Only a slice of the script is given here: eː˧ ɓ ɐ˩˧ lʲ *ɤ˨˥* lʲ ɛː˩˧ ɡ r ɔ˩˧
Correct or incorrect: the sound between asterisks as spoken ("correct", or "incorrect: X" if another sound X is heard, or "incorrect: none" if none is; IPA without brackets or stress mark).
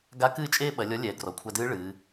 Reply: incorrect: ɔ˨˥